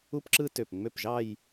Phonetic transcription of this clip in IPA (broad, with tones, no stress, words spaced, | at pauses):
u˥pǁɯ˥ tø˧˩pŋ͡mø˥˩pʒɑ˥˧j